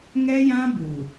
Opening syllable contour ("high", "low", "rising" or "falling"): high